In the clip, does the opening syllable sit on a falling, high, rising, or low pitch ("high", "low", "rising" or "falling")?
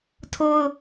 high